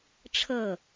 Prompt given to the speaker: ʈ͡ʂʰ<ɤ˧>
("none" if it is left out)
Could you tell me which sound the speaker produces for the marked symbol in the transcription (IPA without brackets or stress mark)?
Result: ɤ˥˨